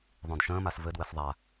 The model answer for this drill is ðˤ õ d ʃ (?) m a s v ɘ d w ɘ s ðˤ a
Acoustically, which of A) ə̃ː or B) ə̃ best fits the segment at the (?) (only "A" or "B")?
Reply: A